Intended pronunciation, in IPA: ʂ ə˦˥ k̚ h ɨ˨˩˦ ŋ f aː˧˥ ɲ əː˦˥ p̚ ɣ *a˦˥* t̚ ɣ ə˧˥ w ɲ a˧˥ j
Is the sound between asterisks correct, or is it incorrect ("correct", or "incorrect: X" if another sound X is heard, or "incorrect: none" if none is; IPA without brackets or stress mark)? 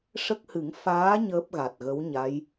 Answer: incorrect: a˨˩